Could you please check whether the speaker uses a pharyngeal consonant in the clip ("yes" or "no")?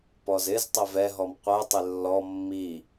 no